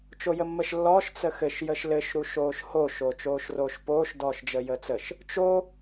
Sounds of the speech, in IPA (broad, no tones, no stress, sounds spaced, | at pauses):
t͡ʃ o j ə mː ə ʃ lː ɔː ʃ t͡s ə x ɘ ʃ j ə ʃ l ɘ ʃ ɾ u ʃ oː ʃ h o ʃ o t͡ʃ oː ʃ r oː ʃ p oː ʃ d ɔː ʃ d͡ʒ əː j əː t͡s ə ʃ | t͡ʃ o